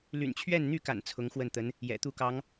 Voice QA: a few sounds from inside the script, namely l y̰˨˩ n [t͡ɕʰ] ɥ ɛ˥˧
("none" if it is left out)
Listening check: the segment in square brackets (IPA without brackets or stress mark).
t͡ɕʰ